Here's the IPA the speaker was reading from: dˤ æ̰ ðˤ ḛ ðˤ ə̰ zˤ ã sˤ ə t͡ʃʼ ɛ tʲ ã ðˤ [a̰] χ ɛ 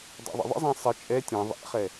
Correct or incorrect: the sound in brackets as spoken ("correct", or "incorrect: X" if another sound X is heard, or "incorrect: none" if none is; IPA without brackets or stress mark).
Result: incorrect: æ̰